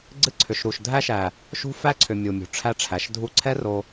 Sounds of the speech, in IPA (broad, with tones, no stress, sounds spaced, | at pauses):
ɡ͡ǀ ɨ˧ ǀʰ ʏ˨ ʃ ɾ u˨ ʃ dʱ æ˧ ʃ æ˨ | ʃ ṳ˦ f æ˦ ǀʰ ʏ˨ mʲ u˨ mʲ ṳ˨ ʈ͡ʂʰ æ˧ ʈ͡ʂʰ æ˨ ʃ dʱ u˦ ǀʰ ɛ˦ r o˧